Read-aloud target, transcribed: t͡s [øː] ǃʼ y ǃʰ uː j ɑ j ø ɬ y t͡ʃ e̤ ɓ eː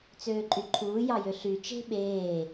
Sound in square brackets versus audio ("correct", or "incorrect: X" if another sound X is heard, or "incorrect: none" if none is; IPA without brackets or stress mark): correct